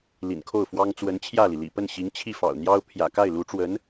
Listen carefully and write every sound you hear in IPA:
lḭ˨˩nkʰo˥˩ʊ̯fwɑ˥ŋ t͡swə˧˥nt͡ɕʰjä˥˩li˩lḭ˨˩ pə˥˩nɕi˧˥ŋ t͡ɕʰi˥˩fɑ̰˨˩ʊ̯n̪jɑ˥ʊ̯ pʰjä̰˨˩ka˥˩ɪ̯ lu˧˥ʈ͡ʂwə˧˥n

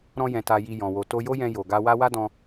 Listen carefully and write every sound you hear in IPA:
ɾɔ̃˧jɛ̃˨ ta˧ji˧ jɔ̃˨wo˨ to˧jo˦jɛ̃˧ jo˨ ɡa˧wa˦ wa˦dɔ̃˧

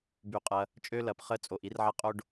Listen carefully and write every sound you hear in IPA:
by˩qʼɐ˩ | t͡ʃʼø˧lɐ˩p χə˧t͡sʼo˩ʔi˧rʕɐ˧ qʼo˧ɖ

